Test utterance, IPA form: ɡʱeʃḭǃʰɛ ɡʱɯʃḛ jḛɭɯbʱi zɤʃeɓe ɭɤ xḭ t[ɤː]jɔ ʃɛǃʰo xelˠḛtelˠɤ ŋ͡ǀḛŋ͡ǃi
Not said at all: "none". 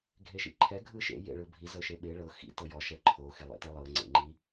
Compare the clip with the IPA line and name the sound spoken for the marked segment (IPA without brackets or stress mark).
ɤ